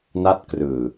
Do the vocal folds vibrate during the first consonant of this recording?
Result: yes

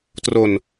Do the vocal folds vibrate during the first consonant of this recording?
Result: no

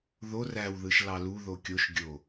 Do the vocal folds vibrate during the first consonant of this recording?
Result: yes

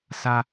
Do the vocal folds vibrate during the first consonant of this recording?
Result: no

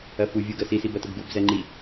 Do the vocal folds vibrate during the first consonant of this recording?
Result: no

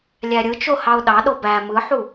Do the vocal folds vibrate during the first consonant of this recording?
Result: yes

